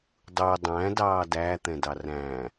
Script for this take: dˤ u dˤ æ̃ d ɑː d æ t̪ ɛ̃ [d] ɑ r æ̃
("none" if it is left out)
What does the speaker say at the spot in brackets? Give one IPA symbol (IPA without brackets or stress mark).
d